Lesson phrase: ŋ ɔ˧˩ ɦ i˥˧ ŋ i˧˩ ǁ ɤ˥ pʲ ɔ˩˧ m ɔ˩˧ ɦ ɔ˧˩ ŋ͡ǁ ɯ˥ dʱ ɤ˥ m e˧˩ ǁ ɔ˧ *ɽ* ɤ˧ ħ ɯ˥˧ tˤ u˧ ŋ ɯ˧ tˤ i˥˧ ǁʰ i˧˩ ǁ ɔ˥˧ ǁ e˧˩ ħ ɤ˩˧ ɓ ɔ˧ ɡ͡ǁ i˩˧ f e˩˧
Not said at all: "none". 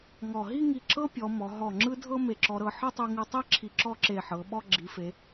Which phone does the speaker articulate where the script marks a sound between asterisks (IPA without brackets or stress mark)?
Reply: ɾ